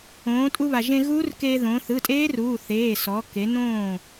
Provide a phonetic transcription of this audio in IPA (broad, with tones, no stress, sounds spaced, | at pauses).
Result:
õː˩˧ tʼ u˧ β a˩ ʒ ẽ˧ ɣ uː˦˥ r k eː˧ ð õ˩˧ θ ɯ˩˧˩ tʼ eː˦˥ r uː˩˧˩ θ eː˩˧˩ s ɔ˩˧ k e˩˧ n õː˥˩